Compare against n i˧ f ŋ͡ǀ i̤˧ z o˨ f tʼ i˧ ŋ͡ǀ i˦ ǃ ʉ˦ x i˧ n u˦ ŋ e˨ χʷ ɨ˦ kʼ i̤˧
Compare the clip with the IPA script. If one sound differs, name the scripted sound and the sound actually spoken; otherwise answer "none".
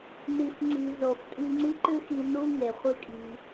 none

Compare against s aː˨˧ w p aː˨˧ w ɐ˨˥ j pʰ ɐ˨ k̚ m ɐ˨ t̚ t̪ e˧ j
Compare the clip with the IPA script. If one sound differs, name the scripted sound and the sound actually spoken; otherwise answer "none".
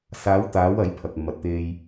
p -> t̪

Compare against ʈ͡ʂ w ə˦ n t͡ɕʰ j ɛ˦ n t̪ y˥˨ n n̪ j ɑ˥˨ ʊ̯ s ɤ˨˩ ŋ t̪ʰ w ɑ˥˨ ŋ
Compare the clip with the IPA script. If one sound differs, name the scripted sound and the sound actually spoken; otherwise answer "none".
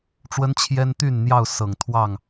none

